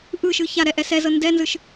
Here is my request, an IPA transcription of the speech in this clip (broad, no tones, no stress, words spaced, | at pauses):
ʔɯʃɯ çaɾɛ ʔɛsɛzɤ ndɛnzɯʃ